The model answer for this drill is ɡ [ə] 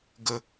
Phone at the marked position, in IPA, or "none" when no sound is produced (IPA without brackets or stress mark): ə